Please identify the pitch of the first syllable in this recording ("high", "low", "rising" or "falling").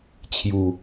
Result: low